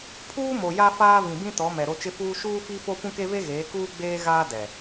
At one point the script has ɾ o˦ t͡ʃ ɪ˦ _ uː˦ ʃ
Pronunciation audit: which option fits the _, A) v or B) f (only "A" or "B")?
B